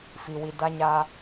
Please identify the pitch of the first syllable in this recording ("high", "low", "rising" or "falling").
low